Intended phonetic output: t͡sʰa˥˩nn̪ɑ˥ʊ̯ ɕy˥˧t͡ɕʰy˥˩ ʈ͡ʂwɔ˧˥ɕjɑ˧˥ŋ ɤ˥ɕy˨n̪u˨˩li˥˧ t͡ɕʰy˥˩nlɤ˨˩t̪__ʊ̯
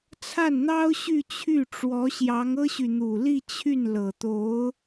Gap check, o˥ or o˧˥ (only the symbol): o˧˥